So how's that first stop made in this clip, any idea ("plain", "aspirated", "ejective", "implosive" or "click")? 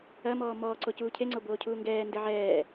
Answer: click